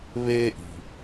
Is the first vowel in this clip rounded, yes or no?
no